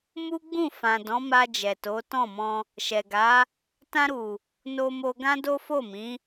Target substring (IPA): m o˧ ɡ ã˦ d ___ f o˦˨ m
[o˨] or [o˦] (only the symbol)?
o˦